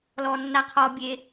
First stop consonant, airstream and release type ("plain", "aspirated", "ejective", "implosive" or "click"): aspirated